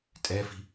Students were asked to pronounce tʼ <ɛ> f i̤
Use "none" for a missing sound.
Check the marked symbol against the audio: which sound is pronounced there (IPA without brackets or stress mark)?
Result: ɛ